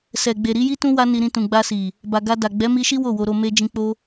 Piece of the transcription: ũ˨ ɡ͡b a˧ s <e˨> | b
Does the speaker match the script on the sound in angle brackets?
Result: no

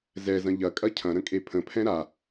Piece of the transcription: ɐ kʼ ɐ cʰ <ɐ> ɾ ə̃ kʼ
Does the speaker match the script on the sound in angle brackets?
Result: no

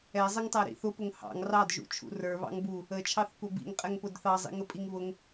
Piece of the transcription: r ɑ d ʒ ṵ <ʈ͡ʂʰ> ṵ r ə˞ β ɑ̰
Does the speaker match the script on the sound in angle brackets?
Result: no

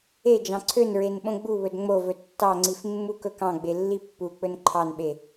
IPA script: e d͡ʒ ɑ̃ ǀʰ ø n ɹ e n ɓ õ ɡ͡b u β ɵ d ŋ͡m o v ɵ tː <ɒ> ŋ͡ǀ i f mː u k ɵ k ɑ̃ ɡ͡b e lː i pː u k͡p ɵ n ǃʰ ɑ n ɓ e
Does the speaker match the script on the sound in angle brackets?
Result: no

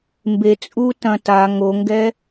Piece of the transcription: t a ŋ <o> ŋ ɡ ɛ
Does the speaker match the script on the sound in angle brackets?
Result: yes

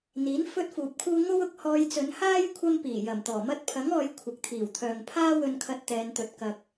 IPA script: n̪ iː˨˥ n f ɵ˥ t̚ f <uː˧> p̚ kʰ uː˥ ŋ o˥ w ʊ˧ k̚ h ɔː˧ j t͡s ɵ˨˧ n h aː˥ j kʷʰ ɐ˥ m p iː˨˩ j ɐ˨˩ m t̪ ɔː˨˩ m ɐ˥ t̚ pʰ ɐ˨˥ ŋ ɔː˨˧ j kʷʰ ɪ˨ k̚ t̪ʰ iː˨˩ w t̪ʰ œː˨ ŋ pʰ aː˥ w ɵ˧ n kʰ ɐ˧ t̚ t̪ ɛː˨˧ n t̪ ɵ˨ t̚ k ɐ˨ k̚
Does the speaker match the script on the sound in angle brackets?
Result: no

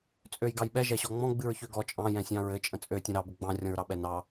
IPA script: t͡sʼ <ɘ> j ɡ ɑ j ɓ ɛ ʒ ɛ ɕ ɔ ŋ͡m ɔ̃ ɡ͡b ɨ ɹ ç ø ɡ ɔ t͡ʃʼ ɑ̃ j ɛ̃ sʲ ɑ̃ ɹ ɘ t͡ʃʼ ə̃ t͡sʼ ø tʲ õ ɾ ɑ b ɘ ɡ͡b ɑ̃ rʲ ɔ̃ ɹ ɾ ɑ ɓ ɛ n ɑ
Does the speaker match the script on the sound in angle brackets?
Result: no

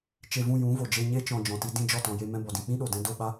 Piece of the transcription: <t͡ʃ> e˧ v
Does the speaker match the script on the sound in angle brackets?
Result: yes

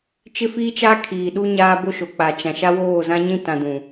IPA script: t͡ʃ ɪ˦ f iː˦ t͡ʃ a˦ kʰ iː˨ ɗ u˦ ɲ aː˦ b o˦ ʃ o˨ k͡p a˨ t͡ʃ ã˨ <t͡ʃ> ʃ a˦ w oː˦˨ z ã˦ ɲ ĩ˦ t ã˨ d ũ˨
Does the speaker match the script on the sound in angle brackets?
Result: no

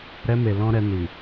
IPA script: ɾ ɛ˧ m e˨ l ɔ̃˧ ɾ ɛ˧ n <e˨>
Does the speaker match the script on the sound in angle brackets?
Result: no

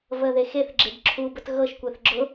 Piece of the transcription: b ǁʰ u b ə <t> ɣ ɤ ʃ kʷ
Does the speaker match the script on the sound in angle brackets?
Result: yes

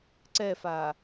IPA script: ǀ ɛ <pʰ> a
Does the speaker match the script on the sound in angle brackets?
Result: no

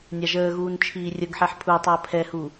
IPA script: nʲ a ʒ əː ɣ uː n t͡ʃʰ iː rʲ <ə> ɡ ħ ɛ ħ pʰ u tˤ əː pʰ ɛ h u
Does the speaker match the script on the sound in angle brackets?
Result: yes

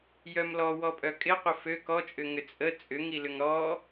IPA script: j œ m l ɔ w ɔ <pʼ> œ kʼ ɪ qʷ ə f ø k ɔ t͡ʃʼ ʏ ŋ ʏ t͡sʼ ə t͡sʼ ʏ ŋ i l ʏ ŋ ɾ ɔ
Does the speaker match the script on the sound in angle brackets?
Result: yes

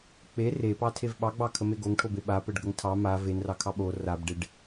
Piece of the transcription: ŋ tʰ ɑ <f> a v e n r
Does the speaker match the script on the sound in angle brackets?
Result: no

